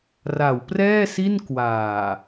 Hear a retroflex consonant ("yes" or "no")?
no